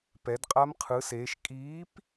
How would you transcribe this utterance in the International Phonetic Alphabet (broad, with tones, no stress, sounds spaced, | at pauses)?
p ɛ˨˦ d qʼ a˦˥ m qʰ ɯ˨˦ s eː˨˦ ʃ kʼ iː˨˦ p